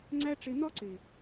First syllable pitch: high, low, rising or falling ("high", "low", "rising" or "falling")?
high